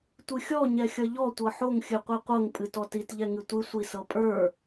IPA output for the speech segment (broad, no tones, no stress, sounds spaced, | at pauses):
tʷ ɨ xʲ ɔ ɲ ɛ xʲ ʌ ʎ ɔ tʷ ɤ ħ o ŋ xʲ ɨ qʷ i qʷ ɤ ŋ pʼ ɨ t ɔ t i t ʎ ɛ ŋ ɨ tʷ ɨ sʷ i s ɤ pʼ ə˞